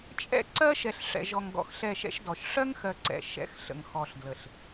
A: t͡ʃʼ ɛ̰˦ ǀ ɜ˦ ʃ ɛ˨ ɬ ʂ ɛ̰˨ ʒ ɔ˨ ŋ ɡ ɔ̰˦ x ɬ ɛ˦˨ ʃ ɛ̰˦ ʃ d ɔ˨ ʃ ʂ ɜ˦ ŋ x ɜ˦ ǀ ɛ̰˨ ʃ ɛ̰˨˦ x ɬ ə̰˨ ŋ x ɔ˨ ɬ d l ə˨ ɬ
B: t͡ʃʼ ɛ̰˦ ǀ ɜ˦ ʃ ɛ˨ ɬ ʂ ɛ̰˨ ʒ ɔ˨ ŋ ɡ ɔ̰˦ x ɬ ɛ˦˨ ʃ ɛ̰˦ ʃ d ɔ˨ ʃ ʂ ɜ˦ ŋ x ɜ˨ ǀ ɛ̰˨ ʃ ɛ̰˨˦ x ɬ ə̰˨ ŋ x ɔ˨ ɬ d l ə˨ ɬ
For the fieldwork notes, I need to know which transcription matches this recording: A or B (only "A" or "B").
B